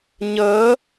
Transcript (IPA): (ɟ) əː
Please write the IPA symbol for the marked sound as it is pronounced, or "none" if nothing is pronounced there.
ɲ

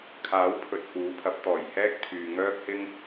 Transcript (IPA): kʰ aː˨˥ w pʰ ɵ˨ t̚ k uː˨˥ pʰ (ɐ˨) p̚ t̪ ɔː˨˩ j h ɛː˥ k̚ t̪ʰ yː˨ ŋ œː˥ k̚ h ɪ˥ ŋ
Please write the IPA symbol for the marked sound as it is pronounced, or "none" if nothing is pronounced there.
ɐ˨˥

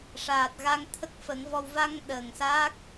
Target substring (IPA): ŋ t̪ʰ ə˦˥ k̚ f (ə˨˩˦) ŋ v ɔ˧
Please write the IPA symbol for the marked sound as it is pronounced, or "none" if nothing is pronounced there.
ə˨˩˦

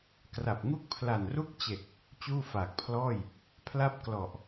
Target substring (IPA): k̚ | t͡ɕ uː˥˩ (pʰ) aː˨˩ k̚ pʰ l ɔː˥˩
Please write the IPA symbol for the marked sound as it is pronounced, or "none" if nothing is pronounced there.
f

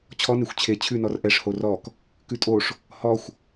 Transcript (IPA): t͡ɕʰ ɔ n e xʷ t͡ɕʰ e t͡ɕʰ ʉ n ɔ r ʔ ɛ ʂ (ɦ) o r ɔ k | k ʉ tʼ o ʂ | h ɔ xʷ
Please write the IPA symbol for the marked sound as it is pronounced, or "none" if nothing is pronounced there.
h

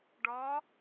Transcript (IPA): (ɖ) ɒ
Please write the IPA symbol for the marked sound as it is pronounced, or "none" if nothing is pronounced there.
ɖ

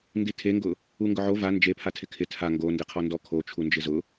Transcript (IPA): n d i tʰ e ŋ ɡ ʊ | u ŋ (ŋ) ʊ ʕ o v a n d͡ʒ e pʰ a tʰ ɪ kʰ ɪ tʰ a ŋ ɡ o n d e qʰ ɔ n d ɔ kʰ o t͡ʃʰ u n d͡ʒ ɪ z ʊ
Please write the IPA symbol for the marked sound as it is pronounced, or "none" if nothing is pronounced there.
ɡ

